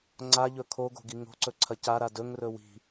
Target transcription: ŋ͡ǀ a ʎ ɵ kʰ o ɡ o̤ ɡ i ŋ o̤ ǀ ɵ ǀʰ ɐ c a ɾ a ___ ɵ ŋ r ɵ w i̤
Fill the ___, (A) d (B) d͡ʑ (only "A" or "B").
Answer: A